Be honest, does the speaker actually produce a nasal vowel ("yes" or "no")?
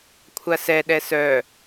no